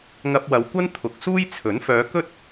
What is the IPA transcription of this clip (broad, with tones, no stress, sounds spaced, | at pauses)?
ŋ ɐ˧ p̚ w ɐ˨˧ w kʷ ɐ˥ n t̪ʰ ʊ˨ k̚ s uː˥ j t͡sʰ ɵ˨˥ n f œː˨˧ k ɵ˥ t̚